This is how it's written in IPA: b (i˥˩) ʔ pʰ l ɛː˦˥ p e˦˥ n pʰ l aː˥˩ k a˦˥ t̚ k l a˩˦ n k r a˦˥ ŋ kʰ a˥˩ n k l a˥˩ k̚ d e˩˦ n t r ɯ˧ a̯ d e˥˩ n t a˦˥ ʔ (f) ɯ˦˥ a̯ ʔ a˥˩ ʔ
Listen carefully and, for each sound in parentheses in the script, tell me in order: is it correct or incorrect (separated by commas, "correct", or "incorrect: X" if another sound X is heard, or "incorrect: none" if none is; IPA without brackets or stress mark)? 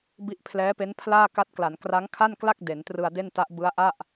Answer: correct, incorrect: b